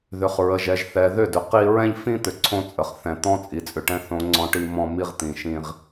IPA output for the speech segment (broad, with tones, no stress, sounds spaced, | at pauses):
ð ʏ˨ χ ɹ ə˨ ʒ ɛ˨ ʒ θ ɛ˨ ð ʏ˦˨ d ʏ˨ q i˦ ɹ ɛ̃˦ ʎ f ĩ˦ t̪ ʏ˨ ǀʰ õ˦ t͡sʼ ə˨ χ θ ɛ̃˨ t̪ ɔ̃˦ t͡sʼ i˨ t͡sʼ ʏ˨ ʈ ɛ̃˦ θ õ˦ ŋ͡ǀ ɔ̃˦ ʈ i˦ m ɔ̃˦ m i˦ ʁ t̪ ĩ˨ ʃ ĩ˦ ʁ